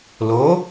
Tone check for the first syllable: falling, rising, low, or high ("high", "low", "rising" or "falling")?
rising